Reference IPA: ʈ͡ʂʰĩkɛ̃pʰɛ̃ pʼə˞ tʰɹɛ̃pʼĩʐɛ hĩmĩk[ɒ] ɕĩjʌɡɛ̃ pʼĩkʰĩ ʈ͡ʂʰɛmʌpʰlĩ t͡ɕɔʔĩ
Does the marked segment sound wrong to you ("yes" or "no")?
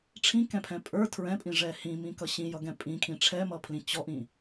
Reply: yes